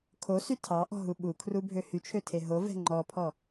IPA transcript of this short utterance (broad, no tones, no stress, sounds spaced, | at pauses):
kʰ o s y tʰ ɑ ʔ ɔ̤ ɦ u ɓ u kʰ r u bʱ ø h y t͡ʃʰ ø tʰ e ɦ o v ɛ̤ ŋ͡ǃ ɔ pʰ ɔ